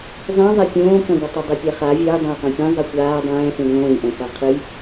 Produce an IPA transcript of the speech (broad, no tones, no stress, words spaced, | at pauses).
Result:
zˤẽzˤɛ pʲõːkɐ̃ɡʷɘ tˤɘdˤepʲɛχa vʲɘːdˤãjqõ pʲɛ̃ zˤɘkʷaː dˤɛ̃ːfẽ ŋõːjʔɛ̃ kaqʰɨj